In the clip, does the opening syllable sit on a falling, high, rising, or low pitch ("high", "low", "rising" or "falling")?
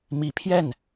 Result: rising